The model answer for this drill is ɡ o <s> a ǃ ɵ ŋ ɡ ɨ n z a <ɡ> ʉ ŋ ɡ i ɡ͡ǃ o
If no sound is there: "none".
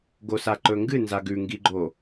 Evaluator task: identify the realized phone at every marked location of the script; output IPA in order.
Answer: s, ɡ

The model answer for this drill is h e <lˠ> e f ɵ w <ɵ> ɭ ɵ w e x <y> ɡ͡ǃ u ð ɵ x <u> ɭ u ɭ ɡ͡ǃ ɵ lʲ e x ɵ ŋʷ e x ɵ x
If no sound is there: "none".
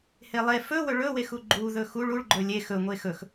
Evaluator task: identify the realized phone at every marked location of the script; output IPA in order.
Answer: lˠ, ɵ, u, u

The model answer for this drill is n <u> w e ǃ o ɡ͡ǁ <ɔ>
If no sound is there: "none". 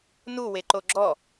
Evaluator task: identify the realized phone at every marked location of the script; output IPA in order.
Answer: u, ɔ

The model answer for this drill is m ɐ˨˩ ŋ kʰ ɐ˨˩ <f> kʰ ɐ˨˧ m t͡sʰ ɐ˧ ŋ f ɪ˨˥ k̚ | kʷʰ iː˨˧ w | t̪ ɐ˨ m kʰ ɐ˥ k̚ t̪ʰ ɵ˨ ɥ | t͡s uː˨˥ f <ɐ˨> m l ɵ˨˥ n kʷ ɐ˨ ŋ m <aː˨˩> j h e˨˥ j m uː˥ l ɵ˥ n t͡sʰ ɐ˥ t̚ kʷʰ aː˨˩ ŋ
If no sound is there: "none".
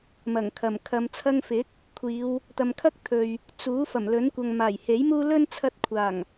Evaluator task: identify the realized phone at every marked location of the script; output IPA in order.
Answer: m, ɐ˨˩, aː˨˩

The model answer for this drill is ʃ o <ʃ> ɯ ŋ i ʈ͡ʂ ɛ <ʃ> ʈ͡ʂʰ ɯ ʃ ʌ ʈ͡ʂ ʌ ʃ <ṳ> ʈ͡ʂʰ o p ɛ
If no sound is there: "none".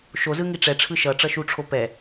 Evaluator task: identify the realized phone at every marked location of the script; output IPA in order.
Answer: z, none, u

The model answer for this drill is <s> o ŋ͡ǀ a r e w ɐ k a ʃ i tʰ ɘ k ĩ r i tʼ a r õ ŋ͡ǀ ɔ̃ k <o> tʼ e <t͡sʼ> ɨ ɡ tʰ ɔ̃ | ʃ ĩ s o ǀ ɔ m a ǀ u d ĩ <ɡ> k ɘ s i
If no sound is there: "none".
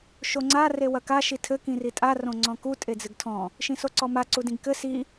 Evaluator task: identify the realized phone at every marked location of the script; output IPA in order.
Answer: ʃ, u, d͡z, ɡ

